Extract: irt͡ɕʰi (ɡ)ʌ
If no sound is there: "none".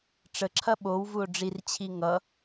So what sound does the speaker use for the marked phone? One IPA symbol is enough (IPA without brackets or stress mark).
ŋ